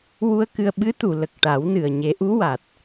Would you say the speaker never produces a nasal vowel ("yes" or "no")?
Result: yes